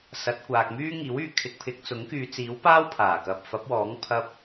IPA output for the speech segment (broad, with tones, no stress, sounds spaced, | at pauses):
s ɐ˨˥ t̚ kʷ aː˨ k̚ m yː˥ ŋ iː˨˥ w yː˧ kʰ ɪ˨˥ k̚ pʰ ɪ˨ k̚ t͡s ʊ˨˥ ŋ k yː˨˧ t͡s iː˨˥ w p aː˥ w pʰ aː˨˩ k ɐ˨ p̚ f ɐ˨˥ p̚ w ɔː˨˥ ŋ pʰ ɐ˧ p̚